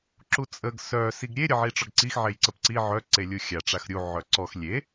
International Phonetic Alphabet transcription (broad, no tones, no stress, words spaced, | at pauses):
ǁut͡sʼəɡ sœ siɡɾʲe ɾʲəʕiʈ͡ʂɔɡǀix ʕejǀəpǀi ʕœ ǀelʲuxʲa ʈ͡ʂaxɾʲu ʕœǀɔx lʲe